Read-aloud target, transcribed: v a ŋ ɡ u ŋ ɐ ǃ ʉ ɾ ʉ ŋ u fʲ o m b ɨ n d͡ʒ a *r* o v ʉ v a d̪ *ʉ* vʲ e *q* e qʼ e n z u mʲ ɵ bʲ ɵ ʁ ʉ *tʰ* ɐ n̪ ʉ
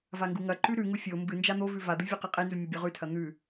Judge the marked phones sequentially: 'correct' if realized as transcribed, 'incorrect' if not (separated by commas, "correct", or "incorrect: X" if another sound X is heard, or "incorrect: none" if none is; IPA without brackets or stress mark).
incorrect: n̪, incorrect: ɨ, correct, correct